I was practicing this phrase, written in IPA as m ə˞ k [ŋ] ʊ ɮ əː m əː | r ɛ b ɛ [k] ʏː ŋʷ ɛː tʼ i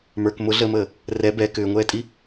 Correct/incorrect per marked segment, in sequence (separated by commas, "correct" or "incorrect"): incorrect, correct